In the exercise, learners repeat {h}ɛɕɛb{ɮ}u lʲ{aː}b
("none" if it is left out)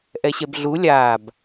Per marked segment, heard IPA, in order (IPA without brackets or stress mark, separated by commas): ʔ, ɮ, aː